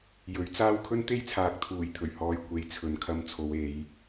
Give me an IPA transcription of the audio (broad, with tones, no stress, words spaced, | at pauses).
jɵ˨˥ɥt͡saː˥w kʰɵ˥nt̪e˥jt͡sʰaː˨k̚ t̪ʰuː˨˩jt̪ʰɵ˨˩ɥhɔː˨j kʷe˨j t͡sʰɵ˨n kʰɐ˧mt͡sʰo˨˧w e˨˧j